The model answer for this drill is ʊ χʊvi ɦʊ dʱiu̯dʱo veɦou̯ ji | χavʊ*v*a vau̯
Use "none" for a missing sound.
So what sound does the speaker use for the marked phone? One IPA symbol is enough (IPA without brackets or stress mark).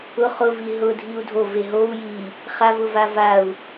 v